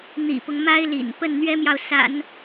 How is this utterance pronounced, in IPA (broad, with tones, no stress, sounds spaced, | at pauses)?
n̪ ḭ˨˩ p ʊ˦ ŋ m a˥ ɪ̯ l ḭ˨˩ n p ə˥˩ n n̪ ɥ ɛ˥ m j ɑ˨ ʊ̯ s a̰˨˩˦ n